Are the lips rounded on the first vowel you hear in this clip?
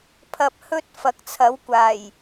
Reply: no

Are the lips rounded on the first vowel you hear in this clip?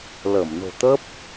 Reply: no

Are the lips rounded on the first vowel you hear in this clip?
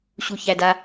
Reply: yes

